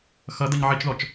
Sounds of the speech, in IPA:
x ʌ d ʌ ɲ ʕ i t͡ʃ ð ɔ t͡ʃ

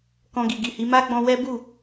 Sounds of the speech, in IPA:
k ɔ̃˧ ɡ i˨ ɡ i˨ h i˨˦ m a˦ ɡ͡b ɔ̃˧ w ɛ˦ b u˦˨

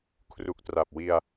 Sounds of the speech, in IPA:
kʰ r u˨˩ k̚ t r a˨˩ p̚ w i˧ a̯

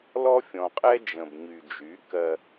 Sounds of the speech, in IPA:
l ɔ˦ fʲ ɔ̃˨ qʼ ɛ˦ d͡ʒ ə̃˨ b ɲ y˨ d͡ʒ y˨˦ k ɜ˦

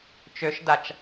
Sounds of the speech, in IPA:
t͡ʃ ø ʃ d a t͡ʃ

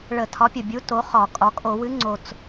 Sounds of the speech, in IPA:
ɭ ə˧˩˧ tʰ ɒ˨˥ pʲ ə˨˩ bʲ u˨˥ t o˨˥ χ ɒ˧˩˧ kʼ ɒ˩˧ kʼ o˧˩˧ w ɨ˨˥ ŋ͡ǀ o˨˩ t͡s

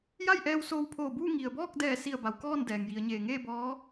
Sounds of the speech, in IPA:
j a˥˨ j ʔ ɛː˧ w s oː˧ w pʰ oː˧˩ b uː˥˨ ŋ i˩ ə̯ b ɔː˥˨ k̚ d ɛː˧˩ s i˧˩ ə̯ b a˩˧ w k ɔː˥˨ n d ɛː˩ ŋ j i˩˧ ə̯ ɲ eː˩ ŋ eː˥˨ b ɔː˧˥

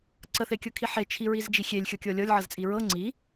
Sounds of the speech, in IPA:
ǀ ə θ e kʲ ɤ kʰ i ħ e t͡ʃʰ i ɹ i z d͡ʒ i xʲ e lʲ xʲ ɤ kʲ ɤ lʲ ɤ lʲ ʕ ɤ z t͡sʼ i ɹ ɤ ŋ͡ǀ i

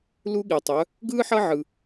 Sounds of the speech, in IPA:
l u˥ ɠ i˧ tˤ œ˧˥ | ɡ ɯː˥ ħ ʌ˥ ʕ ɯ˧

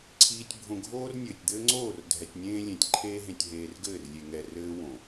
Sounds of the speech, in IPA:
ǀʰ iː˨ tʲ bʱ õ˨ ɡʱ oː˦ r nʲ ɘː˨ tʲ d̪ ɘː˦ ŋ͡ǀ oː˦˨ r dʱ ɛ˨ tʲ nʲ ẽː˦ lʲ ẽ˨ tʲ ǃʰ eː˦ ɦ ẽ˨ tʲ ɦ eː˨ r ɡ ɘː˦˨ r lʲ e˨ ŋ ɛ˨ r ɘː˦ w õ˨

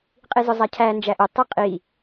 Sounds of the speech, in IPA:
qʼ i z ʊ zˤ a cʰ æ n d͡ʒ æ ʔ ʊ tˤ i qʼ i

